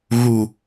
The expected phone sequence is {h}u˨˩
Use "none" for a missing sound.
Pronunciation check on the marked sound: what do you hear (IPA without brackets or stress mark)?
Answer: ɣ